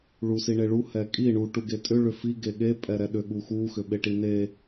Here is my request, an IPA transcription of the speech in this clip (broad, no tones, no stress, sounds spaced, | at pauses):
ɭ u s i ɳ e ɭ u h ɛ kʼ i ɳ u ʈ u ɡ e tʼ ʏ ɭ ʏ f i ɡ e ɠ e pʼ ɛ ɾ ɛ ɗ ʏ ɠ u x u x ʏ ɓ e ʈ i n e